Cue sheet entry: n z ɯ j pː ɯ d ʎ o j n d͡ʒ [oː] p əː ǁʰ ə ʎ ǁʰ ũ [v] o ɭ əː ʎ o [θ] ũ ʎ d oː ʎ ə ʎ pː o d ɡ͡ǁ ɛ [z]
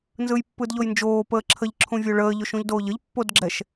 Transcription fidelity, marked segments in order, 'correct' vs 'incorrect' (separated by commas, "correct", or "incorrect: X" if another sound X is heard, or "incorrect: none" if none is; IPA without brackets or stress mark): correct, incorrect: vʲ, incorrect: ʃ, incorrect: ʃ